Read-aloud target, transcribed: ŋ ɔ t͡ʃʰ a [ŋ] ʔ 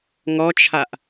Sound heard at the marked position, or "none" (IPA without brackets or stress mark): none